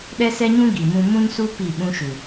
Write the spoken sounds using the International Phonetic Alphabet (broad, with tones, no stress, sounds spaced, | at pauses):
ɗ ɛ˦ s ɛ˦ ɲ ũ˦ ɡ i˨ m ũ˦ m ũ˦ n s u˦ p i˦˨ ɓ ũ˦ ʃ u˨